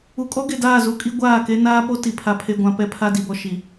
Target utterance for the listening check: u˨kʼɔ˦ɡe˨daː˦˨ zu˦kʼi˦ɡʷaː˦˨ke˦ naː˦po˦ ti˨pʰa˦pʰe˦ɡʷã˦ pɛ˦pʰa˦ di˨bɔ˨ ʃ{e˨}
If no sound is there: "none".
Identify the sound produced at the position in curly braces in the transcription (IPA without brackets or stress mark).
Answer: i˨